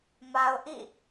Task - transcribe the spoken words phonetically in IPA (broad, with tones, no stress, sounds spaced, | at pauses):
m a˨ ʊ̯ ʔ ḭ˦˨